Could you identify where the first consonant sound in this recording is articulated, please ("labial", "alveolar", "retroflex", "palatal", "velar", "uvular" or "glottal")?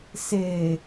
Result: alveolar